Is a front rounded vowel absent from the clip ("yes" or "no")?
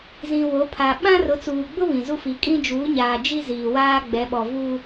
yes